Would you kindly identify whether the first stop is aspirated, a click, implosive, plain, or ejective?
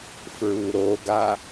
plain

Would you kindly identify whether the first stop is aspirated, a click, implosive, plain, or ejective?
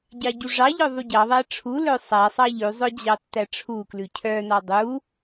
plain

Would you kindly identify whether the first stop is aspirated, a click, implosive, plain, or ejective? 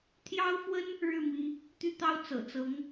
aspirated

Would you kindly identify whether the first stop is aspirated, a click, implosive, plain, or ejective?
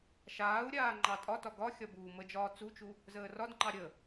click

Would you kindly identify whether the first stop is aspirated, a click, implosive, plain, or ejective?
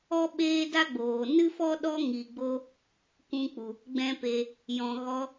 implosive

